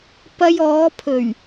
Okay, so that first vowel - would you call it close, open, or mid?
open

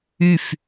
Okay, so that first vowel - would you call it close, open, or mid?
close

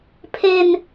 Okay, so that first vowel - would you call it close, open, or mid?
mid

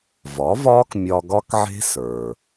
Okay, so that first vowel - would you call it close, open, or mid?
open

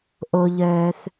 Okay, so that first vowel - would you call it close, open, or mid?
mid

